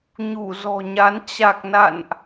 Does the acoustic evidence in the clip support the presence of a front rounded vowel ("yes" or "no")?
no